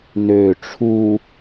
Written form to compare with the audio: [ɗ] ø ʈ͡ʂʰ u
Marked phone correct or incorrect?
incorrect